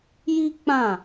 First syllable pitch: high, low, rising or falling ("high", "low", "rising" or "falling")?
high